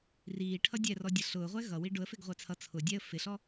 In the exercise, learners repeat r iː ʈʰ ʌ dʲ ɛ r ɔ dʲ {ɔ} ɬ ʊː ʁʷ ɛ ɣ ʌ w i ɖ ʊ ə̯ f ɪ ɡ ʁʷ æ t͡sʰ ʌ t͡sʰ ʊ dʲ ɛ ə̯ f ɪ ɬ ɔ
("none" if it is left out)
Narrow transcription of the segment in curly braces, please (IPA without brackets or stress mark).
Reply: ʌ